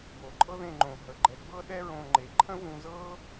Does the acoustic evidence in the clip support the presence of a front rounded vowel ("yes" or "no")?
no